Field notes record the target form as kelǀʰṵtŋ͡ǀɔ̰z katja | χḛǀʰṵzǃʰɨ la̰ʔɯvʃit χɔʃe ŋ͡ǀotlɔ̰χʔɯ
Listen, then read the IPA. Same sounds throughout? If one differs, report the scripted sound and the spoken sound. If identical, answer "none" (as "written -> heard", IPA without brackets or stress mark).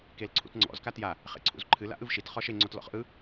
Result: none